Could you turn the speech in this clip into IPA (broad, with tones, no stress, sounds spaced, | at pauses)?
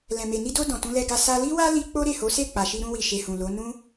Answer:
l ɛ̃˨ m e˨ n i˧ d o˧ d ɔ̃˨ t ũ˧ l ɛ˧ ɡ a˧ s a˧ l i˦ w a˦ l i˧ k͡p o˦ ɾ e˦˨ h o˨˦ s e˦˨ k͡p a˨ ʃ i˧ ɾ ũ˧ w i˨ ʃ e˨ h ũ˨ l o˨˦ n ũ˦